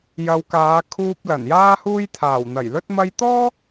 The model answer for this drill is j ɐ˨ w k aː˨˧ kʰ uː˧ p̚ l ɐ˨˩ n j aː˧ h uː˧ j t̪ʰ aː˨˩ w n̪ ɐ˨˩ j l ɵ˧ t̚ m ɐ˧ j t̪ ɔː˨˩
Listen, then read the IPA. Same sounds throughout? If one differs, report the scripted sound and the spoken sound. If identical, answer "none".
ɔː˨˩ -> ɔː˥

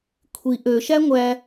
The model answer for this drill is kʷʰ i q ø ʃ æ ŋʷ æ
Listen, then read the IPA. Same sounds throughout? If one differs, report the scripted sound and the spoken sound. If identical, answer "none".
q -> ʔ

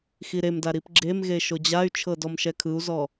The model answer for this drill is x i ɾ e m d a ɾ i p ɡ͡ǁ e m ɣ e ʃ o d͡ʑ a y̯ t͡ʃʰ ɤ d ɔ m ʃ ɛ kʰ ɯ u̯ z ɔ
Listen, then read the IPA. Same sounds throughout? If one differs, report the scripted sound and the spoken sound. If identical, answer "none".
none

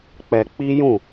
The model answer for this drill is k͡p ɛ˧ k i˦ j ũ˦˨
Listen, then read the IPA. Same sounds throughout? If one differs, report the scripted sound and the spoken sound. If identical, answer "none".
k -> k͡p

